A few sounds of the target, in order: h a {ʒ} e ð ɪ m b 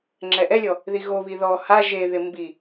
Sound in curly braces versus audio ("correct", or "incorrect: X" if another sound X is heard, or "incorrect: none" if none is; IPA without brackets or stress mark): correct